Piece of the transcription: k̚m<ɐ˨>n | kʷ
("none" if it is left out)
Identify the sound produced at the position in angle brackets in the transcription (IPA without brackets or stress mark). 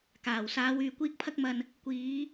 ɐ˨